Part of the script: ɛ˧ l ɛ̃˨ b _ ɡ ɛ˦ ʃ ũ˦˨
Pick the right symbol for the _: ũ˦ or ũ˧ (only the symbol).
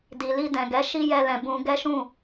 ũ˧